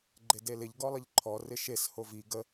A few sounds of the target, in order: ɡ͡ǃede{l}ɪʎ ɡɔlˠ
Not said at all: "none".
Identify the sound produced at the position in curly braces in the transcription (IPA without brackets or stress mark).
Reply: l